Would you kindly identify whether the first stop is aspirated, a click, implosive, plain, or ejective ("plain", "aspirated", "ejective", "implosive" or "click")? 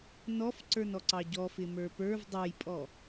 click